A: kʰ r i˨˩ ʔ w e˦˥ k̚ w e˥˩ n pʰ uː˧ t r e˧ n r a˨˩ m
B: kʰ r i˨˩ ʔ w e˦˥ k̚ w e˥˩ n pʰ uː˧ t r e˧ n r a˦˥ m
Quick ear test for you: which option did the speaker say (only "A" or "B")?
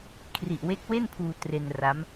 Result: B